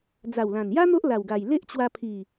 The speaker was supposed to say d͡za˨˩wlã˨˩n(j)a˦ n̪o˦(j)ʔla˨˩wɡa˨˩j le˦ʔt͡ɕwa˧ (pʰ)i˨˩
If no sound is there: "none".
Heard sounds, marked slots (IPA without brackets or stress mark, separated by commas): j, none, pʰ